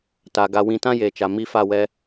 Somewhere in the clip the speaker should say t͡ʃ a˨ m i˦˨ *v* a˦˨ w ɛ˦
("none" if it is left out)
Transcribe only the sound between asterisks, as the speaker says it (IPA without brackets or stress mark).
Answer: f